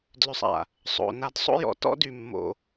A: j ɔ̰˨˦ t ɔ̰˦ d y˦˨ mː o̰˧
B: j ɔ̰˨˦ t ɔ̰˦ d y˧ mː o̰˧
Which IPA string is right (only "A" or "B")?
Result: B